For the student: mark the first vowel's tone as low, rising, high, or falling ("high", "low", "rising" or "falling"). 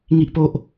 low